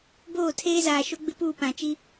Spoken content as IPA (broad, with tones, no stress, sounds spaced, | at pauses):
b oː˦˨ tʰ eː˦ z aː˨ ʃ o˦ ɡ͡b ɪ˦ p uː˦˨ p ã˨ t͡ʃ i˦